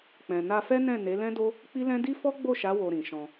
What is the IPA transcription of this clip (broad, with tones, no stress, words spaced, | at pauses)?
k͡pɛ̃˨na˧fɛ˦nɛ̃˦˨ ne˨˦lɛ̃˦do˦ | k͡pi˦lɛ̃˦ di˦fɔ˦ɡ͡bo˦˨ʃa˨˦ wo˧ɾĩ˨ʃɔ̃˧